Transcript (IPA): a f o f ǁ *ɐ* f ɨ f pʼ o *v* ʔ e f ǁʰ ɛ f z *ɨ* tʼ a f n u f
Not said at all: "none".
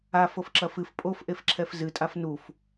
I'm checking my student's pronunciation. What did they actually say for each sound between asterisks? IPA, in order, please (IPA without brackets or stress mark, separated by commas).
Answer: ɐ, f, ɨ